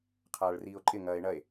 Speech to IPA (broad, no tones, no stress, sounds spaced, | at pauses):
qʰ aː ɭ r iː o̯ ǃʼ ɪ ŋ ɐː e̯ ɳ ɐ e̯